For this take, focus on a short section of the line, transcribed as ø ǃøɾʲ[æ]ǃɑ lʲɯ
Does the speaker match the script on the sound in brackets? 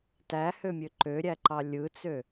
yes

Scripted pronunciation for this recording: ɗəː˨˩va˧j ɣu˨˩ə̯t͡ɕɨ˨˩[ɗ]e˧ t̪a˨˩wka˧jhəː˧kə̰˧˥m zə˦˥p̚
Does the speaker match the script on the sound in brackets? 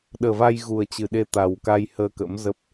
yes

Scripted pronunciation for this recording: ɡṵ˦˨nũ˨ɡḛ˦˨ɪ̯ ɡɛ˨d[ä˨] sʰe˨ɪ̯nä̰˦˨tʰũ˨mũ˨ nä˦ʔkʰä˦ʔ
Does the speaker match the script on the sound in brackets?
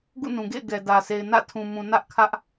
yes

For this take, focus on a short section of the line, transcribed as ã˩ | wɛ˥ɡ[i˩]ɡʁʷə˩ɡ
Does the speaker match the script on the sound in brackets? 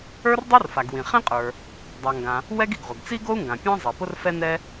yes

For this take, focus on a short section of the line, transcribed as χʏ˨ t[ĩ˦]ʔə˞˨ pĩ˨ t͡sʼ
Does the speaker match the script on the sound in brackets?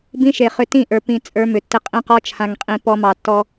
no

